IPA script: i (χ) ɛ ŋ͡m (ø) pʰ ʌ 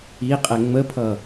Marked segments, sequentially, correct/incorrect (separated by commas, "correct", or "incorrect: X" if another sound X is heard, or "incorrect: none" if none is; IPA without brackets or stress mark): incorrect: qʼ, incorrect: ə